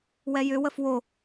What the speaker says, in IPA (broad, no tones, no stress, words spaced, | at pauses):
wɛjʏ wəfwo